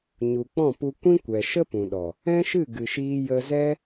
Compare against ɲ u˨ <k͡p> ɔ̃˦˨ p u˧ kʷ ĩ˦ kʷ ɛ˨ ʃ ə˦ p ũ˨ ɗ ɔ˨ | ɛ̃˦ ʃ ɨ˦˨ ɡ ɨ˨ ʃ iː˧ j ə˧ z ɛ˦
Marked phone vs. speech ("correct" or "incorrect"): correct